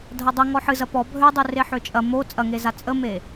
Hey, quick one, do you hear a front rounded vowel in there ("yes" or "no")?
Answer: yes